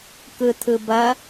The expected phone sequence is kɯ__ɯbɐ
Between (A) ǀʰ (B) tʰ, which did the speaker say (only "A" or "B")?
B